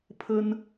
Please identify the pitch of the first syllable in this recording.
high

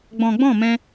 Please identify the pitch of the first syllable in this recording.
low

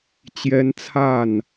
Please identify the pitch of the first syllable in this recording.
high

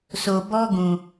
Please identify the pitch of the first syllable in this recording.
low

